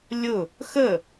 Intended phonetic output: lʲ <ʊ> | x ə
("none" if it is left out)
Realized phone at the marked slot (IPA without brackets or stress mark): ʊ